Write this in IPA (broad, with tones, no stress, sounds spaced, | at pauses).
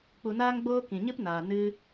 k͡p u˧ n aː˦ ŋ ɡ͡b oː˦ k ĩ˨ ɲ ɨ˦ p n aː˨ n ɨ˦